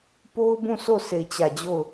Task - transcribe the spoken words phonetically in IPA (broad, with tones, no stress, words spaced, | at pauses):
po˦ʊ̯bũ˦˨so˦˨ sʰe˦˨ɪ̯t͡ɕä˦˨ d͡ʑo˦˨ʊ̯